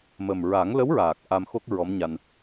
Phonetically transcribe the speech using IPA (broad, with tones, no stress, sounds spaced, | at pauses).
m ə˨˩ m ɹ a˨˩˦ ŋ l ə˧˥ w ɹ aː˨˩ k̚ ʔ a˧ m x o˦˥ k̚ ɹ ɔ˧˥ m ɲ a˧ n